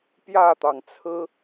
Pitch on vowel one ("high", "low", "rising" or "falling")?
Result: falling